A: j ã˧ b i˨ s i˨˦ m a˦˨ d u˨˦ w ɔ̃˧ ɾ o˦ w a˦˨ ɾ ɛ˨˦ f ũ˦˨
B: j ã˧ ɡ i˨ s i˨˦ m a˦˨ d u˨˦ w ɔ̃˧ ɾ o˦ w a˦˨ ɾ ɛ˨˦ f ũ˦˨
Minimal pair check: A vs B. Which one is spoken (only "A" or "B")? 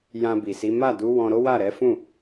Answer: A